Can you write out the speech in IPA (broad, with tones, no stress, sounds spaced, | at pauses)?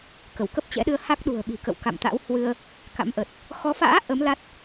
k ə˧˩ w k ə˦˥ p̚ t͡ɕ ɛ̰˧˥ ɗ ɨ˧ ə̯ h a˦˥ k̚ ɗ ṳ˨˩ ə̯ ɓ i̤˨˩ k ə̰˧˨ w k a̰˧˨ m t̪ a̰˧˥ w h w ɨ˧ ə̯ | k a̰˧˥ m ʔ ə˨˩ t̚ | x ɔ˨˦ f a̰ː˧˥ ʔ ə˨˦ m l a˦˥ t̚